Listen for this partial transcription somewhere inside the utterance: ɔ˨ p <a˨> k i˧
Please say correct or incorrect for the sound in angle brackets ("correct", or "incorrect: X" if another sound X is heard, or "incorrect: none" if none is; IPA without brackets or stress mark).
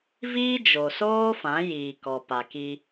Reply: correct